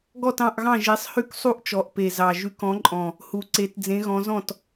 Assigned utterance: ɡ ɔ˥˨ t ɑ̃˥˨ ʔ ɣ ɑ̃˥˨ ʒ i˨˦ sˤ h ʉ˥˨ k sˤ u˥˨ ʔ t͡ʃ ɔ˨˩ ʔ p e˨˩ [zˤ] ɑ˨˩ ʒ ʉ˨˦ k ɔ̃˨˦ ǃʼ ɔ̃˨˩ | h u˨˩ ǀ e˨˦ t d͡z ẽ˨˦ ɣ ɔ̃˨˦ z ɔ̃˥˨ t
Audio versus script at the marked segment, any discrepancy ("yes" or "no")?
yes